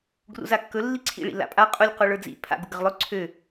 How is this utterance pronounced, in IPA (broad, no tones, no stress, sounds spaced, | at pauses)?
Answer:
ɡ r ṵ z a kː ɵ lː i ǀʰ ḭ ɭ ḭ l a̰ pʼ a qʼ u lʲ q u ɭ ə˞ d͡z ḭ pʰ a̰ ɡ u ɡ ə ʁ lˠ ɵ ǀʰ ø